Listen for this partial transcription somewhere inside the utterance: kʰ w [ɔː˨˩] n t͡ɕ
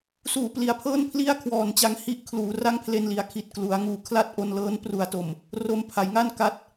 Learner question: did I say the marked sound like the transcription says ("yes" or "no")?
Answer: yes